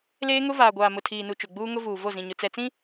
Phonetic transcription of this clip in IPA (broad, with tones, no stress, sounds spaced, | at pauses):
l eː˦ ŋ ʊ˦ v aː˨ ɡʷ aː˨ m ʊ˨ tʰ iː˨ n u˨ t͡ʃ ʊ˨ ɡ͡b uː˦ ŋ ʊ˦ v uː˨ v o˦˨ z ĩ˨ ɲ ʊ˨ t͡s ɛ˨ t͡s ĩ˦